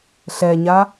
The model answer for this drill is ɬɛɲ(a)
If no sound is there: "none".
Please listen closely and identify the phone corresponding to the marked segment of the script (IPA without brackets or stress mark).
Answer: a